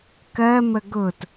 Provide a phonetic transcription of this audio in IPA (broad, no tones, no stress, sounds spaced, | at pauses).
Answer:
k ɜ m ə ɡ ʊ t